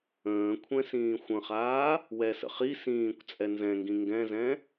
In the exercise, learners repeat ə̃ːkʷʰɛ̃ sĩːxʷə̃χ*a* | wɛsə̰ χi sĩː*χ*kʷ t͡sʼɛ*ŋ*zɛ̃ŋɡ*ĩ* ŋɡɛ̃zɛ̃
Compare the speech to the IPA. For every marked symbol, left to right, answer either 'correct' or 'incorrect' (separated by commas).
incorrect, incorrect, incorrect, correct